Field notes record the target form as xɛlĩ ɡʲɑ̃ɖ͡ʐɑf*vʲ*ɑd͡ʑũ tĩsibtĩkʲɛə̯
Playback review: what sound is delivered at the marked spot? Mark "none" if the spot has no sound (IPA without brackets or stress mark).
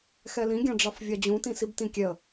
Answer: vʲ